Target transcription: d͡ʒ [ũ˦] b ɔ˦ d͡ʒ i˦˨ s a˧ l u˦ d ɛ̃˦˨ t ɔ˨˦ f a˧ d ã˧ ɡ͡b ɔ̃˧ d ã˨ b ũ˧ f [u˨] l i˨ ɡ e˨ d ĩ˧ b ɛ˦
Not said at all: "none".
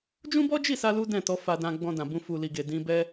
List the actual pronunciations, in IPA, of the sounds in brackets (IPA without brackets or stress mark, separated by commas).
ũ˦, u˨